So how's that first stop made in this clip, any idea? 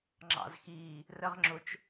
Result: click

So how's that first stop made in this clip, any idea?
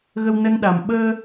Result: implosive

